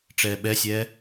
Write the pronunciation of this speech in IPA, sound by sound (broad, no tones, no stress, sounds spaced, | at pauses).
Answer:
ʈ͡ʂ ɛː ɓ ɛ sʲ ɛː